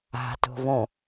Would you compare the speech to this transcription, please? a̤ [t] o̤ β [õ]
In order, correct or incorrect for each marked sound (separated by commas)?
correct, correct